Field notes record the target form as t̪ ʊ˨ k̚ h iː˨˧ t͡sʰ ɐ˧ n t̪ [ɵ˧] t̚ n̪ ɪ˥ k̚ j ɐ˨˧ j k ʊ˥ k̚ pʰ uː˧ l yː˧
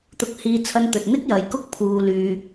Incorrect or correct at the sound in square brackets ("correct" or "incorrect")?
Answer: incorrect